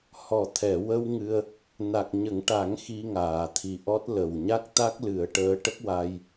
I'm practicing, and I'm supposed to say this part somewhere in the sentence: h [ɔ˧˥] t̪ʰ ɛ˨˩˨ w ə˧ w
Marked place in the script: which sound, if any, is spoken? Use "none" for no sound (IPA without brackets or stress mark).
ɔ˨˩˨